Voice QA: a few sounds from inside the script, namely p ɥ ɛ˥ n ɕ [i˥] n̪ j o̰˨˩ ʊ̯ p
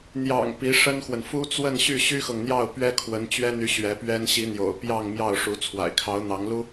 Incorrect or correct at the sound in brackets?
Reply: incorrect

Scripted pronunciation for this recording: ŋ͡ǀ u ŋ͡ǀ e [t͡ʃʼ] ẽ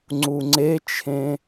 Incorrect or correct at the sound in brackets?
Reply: incorrect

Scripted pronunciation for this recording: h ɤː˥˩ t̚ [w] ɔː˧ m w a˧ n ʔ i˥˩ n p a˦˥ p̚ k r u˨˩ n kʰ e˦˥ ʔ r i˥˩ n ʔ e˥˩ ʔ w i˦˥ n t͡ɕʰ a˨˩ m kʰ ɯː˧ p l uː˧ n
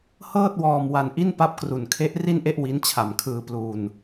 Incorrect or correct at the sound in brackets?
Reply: correct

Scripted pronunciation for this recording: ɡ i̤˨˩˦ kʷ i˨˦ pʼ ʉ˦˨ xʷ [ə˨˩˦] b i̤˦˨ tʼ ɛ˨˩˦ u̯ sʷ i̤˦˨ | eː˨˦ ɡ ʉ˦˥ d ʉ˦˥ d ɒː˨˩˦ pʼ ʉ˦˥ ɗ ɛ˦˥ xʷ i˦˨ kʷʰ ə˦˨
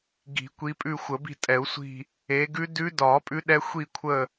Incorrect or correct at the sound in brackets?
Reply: correct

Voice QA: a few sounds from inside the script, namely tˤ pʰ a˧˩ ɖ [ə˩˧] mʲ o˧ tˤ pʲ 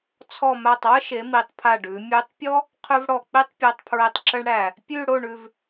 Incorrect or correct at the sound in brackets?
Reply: incorrect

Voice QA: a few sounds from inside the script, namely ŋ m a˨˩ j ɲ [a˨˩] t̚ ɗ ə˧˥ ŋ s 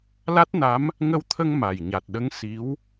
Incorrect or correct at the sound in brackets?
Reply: correct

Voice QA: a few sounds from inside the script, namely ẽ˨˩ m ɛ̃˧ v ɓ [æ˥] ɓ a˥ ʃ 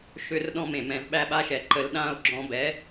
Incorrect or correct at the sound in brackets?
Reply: correct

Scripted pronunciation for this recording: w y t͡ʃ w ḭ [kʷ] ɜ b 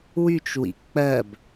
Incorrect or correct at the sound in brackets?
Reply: incorrect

